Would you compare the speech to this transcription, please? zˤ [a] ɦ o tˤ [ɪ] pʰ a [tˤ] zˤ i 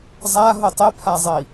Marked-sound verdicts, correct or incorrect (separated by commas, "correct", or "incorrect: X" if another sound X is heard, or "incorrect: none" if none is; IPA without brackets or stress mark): correct, correct, incorrect: none